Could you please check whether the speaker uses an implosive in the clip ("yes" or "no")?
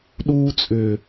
yes